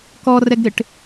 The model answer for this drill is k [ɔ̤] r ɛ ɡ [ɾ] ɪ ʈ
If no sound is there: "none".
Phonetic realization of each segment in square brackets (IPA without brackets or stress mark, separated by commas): ɔ, ɾ